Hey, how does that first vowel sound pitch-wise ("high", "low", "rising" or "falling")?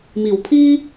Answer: low